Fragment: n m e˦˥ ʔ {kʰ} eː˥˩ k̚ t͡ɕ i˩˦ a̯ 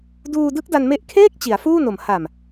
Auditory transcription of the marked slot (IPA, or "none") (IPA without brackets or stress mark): kʰ